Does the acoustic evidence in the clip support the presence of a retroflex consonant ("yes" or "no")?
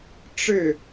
yes